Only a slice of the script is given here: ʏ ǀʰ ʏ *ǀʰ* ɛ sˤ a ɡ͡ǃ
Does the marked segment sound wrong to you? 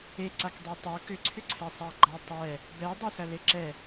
no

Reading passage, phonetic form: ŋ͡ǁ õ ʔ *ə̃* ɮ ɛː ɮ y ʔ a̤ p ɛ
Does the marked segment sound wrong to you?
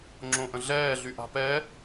no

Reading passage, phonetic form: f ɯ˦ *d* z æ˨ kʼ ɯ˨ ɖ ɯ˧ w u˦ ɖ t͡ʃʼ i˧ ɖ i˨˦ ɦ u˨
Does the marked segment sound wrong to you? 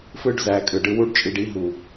yes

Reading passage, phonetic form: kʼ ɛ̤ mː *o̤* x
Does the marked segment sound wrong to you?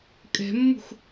yes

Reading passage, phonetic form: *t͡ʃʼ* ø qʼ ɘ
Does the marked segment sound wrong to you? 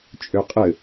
no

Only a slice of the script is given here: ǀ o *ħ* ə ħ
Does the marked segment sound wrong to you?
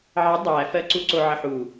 yes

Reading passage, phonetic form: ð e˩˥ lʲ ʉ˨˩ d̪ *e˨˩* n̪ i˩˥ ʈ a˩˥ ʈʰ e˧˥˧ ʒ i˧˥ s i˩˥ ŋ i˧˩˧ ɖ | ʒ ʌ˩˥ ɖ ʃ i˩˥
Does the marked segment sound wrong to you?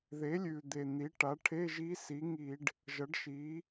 no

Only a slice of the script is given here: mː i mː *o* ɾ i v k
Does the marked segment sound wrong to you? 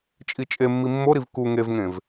no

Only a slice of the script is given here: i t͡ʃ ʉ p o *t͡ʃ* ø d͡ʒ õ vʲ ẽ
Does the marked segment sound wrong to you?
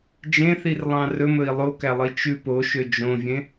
yes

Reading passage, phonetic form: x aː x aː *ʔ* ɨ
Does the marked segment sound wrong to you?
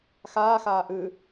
no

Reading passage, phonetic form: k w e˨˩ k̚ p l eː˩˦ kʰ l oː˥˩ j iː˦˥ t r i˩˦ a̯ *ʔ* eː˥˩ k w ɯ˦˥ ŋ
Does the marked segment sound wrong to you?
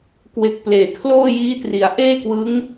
no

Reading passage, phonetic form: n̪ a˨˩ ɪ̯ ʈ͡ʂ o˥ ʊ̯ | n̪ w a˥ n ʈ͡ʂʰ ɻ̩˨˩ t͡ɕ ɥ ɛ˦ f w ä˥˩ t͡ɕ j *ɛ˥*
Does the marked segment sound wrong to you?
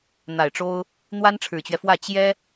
no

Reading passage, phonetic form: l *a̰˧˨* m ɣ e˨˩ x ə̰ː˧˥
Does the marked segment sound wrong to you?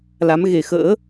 yes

